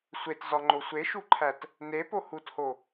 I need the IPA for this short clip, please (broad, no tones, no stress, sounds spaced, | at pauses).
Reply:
sʷ e t z ɒ ŋ͡ǃ o sʷ e ʃ u ǃʰ æ t | n e p o h u t h o